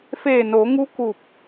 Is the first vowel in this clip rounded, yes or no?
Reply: no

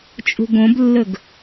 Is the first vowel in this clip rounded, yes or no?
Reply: yes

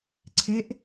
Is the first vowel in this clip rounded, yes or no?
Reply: no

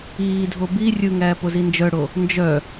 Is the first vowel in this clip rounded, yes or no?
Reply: no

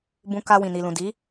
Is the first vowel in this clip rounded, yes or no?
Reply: yes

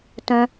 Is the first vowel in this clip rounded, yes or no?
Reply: yes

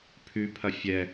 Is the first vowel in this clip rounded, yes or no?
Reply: yes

